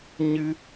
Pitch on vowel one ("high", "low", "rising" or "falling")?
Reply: high